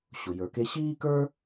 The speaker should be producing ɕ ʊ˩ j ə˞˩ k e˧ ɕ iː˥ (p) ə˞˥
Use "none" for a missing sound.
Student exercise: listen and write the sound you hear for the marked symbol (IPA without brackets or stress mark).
k